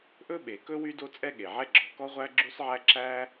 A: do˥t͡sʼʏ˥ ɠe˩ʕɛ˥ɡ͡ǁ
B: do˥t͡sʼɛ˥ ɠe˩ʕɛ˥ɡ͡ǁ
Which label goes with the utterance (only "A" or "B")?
B